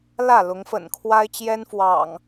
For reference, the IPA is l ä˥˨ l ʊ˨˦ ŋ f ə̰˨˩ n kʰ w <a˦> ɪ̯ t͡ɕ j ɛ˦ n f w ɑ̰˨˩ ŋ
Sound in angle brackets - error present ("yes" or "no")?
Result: no